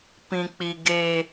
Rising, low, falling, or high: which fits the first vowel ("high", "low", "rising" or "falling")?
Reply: high